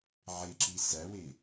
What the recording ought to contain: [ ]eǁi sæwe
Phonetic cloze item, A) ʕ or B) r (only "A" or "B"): A